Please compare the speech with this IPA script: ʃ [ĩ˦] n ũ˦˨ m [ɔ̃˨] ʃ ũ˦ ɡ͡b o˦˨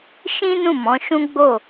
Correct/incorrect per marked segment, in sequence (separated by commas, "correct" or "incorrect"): correct, incorrect